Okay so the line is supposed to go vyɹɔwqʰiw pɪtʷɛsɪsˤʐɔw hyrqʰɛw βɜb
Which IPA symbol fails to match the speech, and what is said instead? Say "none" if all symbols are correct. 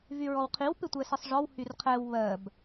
none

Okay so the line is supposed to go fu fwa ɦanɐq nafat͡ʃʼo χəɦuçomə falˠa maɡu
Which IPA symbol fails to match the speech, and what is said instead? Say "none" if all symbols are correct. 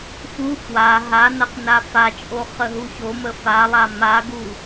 none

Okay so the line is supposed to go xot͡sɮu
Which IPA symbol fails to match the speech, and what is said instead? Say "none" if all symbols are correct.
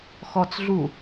o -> ɔ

